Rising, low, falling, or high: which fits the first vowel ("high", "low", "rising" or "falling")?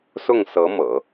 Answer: falling